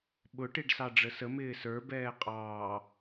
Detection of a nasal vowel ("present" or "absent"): absent